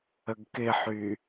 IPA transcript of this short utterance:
ə ɡ k ɪ ħ y

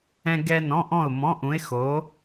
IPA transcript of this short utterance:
ɛ̃˥ ɡ ɛ˥ n ɔ̃˧˥˧ ʔ ɔ̃˥˨ ʊ̯ m ɔ̃˧˥˧ ʔ ũ˧˥ ɪ̯ x o˧˥

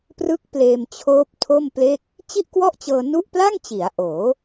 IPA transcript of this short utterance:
p r ɯ˦˥ k̚ p l eː˧ m t͡ɕʰ oː˦˥ p̚ tʰ o˥˩ m p l e˥˩ k̚ | t͡ɕ i˥˩ ʔ k w ɔ˥˩ ʔ t͡ɕ ɤː˧ n u˥˩ ʔ p l a˥˩ ŋ t͡ɕ i˩˦ a̯ ʔ oː˩˦

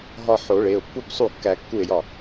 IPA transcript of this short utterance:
ɦ ɒ˧ ħ o˨˩˦ ɭ e˩˧˩ ʊ̯ pː u˥˩ b sˤ u˥˩ kː æ˧ kː u˥˩ ɪ̯ j ɒ˥˩

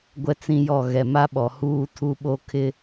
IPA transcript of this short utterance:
ɡʷ ɛ˦ t͡s ĩ˦ j ɔ˦˨ ɣ ɛ˨ m a˦ ɓ ɔ˨ h uː˦ tʰ u˦ ɓ o˦ kʰ ɪ˦

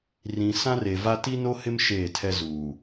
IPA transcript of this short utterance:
r ĩ˨ s ã˦ r e˨ v a˦ t i˦ n o˦ h ɪ˦ m ʃ eː˦˨ tʰ ɛ˦ z uː˨

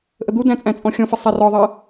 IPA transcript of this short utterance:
ʔ ə d̪ u d æ̃ t͡sʼ æ̃ t͡sʼ ɔ̃ xʲ ɔ̃ f ə sˤ æ r ɔ ðˤ ɜ

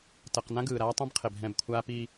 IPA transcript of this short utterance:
t ʌ˨ q n ã˦ ɡ ɯː˨ ɾ aː˦ tˤ ĩ˦ b qʰ e˨ b ɦ ɛ̃˦˨ b kʷʰ aː˦ p i˦

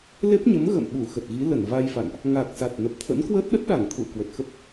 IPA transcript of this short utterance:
l e˦˥ p̚ ɲ ə˨˦ m ɣ ə̰˧˨ m ɓ u˧˩ x ə˨˩ t̚ ɣ i˨˦ l ə˧˩ n v a˧ j f a̰˧˨ n ʔ | ŋ a˨˩ k̚ s a˨˩ t̚ n ə˨˩ p̚ t̪ʰ ə̰˧˥ n k w əː˦˥ t̚ ɗ ə˦˥ t̚ ɗ a˧˩ ŋ t̪ʰ ṵ˧˨ ə̯ k w ə˨˩ t̚ x ə˦˥ p̚

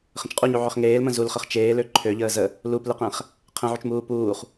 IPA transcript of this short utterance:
χ ə̃ t͡ʃ qʼ u ɲ u ʕ ø χ ŋ eː l m ə̃ z u l χ ə χ t͡ʃ eː l ø ǃʰ ø ʎ əː z ə | l u p l ɨ q ɛ̃ χ | qʰ ə̃ ʕ u t͡ʃ m uː p uː χ

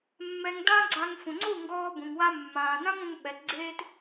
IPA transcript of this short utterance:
mː ɛ˧ ŋ d ã˦ ɡ͡ǀ a˧ ŋ f ũ˨ ŋ͡ǀ u˦˨ ŋ ɡ ɔː˧ b ũ˨ ŋ w a˧ mː ãː˨ n ã˦ ŋ ũ˧ ŋ ɓ ɛ˨˦ t ɡ͡ǀ eː˦ t

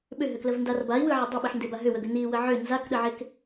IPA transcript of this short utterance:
ɓ ʏ ɦ ʏ k l ə v n d a r b a i̯ w ɯ ʕ ə dˤ e ɓ i ħ n d e b a ɦ ʏ w ə ɡ ʏ n i w ə ʕ ʏ n z a k ɗ ə ʕ e k

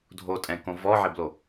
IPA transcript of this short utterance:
dʱ o tʼ ɛ̃ k õ v ɔ ʕ ɪ b l o

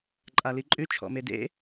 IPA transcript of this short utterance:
ǃʼ a l i ǃʼ ʉ t͡ʃʰ ɔ̰ m e d ḛ

